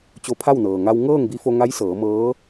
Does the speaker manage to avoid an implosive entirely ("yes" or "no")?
yes